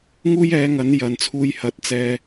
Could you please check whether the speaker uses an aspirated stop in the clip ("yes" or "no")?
yes